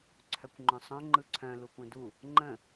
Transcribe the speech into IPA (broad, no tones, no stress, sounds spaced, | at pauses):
ǀʰ œ kʷ ŋ͡ǃ œ̃ sˤ œ̃ ŋ͡ǃ ɯ ǀʰ œ̃ l u kʷ œ̃ d u | ŋ͡ǃ ə̃